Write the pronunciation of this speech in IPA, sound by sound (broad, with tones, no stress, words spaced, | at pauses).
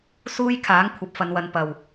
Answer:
suː˥jkʰaː˨˥ŋ kʷʰɐ˨p̚fɐ˨˧nwɐ˨n pɐ˨˩w